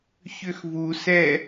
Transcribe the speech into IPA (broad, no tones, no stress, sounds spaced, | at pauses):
ç ʏ x v u s ɛ